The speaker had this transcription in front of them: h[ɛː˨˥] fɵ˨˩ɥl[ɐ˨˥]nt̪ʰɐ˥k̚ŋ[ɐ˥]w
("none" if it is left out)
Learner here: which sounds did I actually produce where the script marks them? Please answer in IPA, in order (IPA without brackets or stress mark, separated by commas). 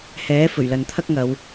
ɛː˨˥, ɐ˨, ɐ˨˧